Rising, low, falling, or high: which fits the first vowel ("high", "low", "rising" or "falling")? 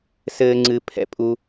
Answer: high